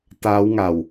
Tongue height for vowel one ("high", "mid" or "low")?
low